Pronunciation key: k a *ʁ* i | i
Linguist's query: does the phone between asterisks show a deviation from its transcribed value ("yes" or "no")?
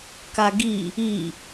yes